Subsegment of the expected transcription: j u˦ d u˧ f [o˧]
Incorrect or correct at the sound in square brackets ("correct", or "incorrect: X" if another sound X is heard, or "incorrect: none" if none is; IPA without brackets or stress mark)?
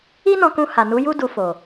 incorrect: o˨